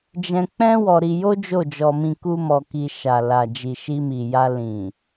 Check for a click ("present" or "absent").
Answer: absent